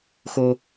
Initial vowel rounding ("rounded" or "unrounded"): rounded